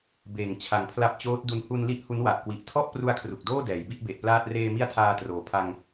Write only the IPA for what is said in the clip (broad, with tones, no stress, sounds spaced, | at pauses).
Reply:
b eː˨˩ ŋ t͡ɕʰ a˨˩ ŋ pʰ l a˦˥ p̚ t͡ɕ oː˦˥ t̚ d u˧ n h u˧ n l i˦˥ ʔ h u˦˥ n w a˨˩ ʔ k w i˨˩ ʔ tʰ ɔ˥˩ ʔ p r u˦˥ a̯ kʰ r u˨˩ k̚ d oː˥˩ d ɛː˩˦ j b i˥˩ ʔ b e˨˩ ʔ p l aː˥˩ t̚ r eː˧ m i˦˥ a̯ tʰ aː˧ t r oː˩˦ pʰ a˧ ŋ